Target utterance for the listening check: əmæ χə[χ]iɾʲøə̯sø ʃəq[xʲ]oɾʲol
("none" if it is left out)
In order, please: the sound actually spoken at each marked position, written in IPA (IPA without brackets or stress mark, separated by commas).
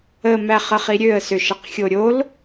χ, xʲ